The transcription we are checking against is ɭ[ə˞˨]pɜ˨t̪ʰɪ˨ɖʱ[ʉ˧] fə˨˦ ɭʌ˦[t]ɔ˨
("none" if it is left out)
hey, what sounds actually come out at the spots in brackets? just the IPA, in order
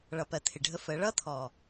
ʌ˨, ə˧, t̪ʰ

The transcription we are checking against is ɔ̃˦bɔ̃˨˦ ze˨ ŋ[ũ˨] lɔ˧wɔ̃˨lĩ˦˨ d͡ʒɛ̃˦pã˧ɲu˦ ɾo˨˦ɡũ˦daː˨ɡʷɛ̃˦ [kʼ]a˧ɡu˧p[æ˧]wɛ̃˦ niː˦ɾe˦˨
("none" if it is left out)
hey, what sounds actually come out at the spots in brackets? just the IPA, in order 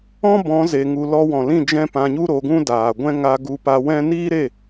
u˨, ŋ, a˧

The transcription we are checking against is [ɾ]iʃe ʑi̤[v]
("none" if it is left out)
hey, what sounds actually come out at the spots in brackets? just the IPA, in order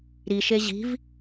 ɾ, v

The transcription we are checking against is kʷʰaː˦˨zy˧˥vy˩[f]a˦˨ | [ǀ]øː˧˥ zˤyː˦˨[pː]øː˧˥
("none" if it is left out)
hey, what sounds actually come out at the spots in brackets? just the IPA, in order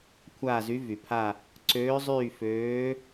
pʰ, ǀ, f

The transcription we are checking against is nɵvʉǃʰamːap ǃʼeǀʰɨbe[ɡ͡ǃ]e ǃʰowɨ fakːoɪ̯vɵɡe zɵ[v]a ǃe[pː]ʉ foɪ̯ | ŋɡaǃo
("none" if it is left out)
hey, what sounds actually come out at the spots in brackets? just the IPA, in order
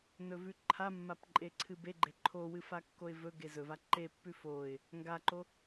ɡ͡ǃ, v, pː

